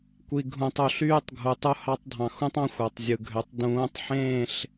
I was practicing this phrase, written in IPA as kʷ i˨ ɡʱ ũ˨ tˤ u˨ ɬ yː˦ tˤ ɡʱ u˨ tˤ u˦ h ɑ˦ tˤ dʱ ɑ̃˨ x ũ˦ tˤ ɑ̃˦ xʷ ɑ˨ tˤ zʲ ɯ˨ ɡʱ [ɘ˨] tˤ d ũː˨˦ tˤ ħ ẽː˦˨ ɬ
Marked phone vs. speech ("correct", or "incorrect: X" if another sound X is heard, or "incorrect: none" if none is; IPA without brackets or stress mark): incorrect: ø˨